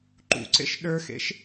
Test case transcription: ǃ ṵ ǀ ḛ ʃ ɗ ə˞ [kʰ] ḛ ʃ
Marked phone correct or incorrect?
incorrect